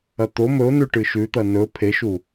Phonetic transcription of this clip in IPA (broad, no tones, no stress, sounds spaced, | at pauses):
ɐ t̪ o m ɵ ʊ̯ n ʉ ʈ ɨ ʃ ʉ t̪ ɐ n ɵ pʰ e ʃ u